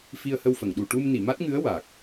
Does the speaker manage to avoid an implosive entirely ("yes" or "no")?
no